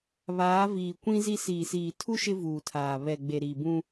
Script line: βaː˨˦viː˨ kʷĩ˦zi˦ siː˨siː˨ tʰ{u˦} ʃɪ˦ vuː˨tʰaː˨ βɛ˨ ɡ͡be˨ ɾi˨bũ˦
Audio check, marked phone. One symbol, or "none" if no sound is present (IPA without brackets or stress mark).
u˦